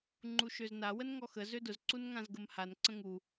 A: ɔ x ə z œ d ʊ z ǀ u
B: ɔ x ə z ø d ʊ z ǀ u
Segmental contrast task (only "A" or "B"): B